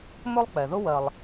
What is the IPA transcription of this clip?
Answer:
m ɵ˥ lˠ k͡p ɛ˩ ð ʊ˥ w ɜ˨ lˠ

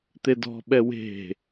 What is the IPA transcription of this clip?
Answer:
t̪ e d ɔ̤ ɓ ɛ w e̤

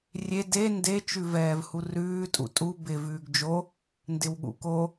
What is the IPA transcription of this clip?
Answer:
rʲ e d e n d e t͡ʃ ʉ v ɛː v h u r ʉː tʼ ṵ tʼ u b ɪ v ʉː ɡ d͡ʒ o | n d ɪ w ɠ ṵ k o

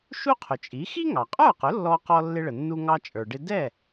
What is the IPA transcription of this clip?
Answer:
ʃ u˥ qʰ ʊ˩ t͡ʃʼ i˩˥ x i˥ ŋ ɑ˩ qʼ ə˞˥˩ q ʊ˩˥ lː ɔ˧ q ɔ˧ lː ɪ˧ ɭ ə˩ nː u˧ ŋ ɑ˧ t͡ʃʼ ə˞˩ ɖ ɪ˧ d ɛ˥˩

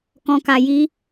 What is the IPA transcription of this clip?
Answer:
k ɔ̃˧ k a˧ j i˦

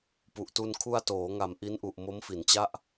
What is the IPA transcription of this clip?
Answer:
p u˨˩ ʔ t u˧ n kʰ u˧ a̯ t oː˩˦ ŋ a˨˩ m ʔ i˦˥ n ʔ u˨˩ ʔ m o˦˥ m f i˩˦ n t͡ɕ a˥˩ ʔ

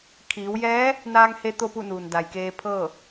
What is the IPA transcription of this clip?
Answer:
kʰ iː˩˧ w j ɛː˧˥ | n aː˧ ŋ h e˧ t̪ o˥˨ p u˥˨ n uː˩ n d a˩ j k eː˧ pʰ ɤː˥˨

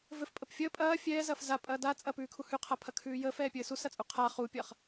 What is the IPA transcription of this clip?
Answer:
v ɘ f pʼ ə p fʲ əː pʼ ɐː fʲ ɛː z ɐː f z a pʼ ɐː d a t͡sʼ ɐ p ʉː kʰ u h ʉ qʰ a pʰ ɐ kʰ ʉː j əː f ɛː pʲ ɘː s u s ɐ t͡sʼ u qʰ a χ u pʲ ɐː χ

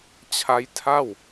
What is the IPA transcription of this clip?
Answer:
t͡ɕʰ a˦˥ j tʰ a˥˩ w

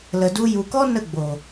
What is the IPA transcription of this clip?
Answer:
l ə˨ d u˧ j u˨ k ɔ˦ n ə˦˨ ɡ͡b o˨

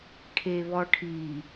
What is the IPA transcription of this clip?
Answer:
ʈʰ e β ɔ ʈʰ i

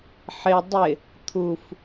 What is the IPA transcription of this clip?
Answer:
ħ ɪ dˤ ɪ | t̪ʰ u f

